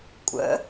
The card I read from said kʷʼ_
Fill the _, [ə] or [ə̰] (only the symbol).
ə̰